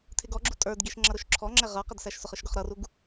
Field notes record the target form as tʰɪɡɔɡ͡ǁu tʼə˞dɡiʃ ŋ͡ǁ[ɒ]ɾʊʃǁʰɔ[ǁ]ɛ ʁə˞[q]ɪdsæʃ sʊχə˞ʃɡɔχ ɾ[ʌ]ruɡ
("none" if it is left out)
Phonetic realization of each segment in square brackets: ʌ, ŋ͡ǁ, q, ʌ

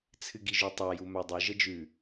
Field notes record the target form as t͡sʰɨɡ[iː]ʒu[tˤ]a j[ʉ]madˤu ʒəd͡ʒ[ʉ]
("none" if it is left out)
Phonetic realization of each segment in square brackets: i, tˤ, u, ʉ

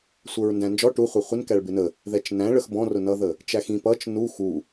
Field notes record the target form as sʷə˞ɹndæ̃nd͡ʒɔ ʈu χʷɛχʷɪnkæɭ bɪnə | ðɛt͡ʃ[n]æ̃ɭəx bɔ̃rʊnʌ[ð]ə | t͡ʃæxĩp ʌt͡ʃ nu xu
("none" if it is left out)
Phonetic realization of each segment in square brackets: n, ð

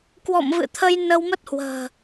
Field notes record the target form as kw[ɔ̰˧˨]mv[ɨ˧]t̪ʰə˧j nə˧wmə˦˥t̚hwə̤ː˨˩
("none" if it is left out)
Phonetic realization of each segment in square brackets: ɔ̰˧˨, ɨ̰˧˨

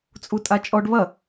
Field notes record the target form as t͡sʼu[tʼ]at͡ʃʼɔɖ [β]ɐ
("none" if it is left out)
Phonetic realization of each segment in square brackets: tʼ, β

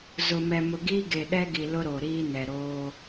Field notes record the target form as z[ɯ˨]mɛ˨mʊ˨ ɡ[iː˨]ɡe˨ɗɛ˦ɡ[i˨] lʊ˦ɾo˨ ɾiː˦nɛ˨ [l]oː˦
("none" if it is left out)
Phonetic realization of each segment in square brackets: ʊ˨, iː˦, i˨, ɾ

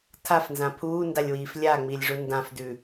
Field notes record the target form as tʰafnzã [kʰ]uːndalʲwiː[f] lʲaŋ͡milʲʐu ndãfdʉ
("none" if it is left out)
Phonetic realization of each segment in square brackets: pʰ, f

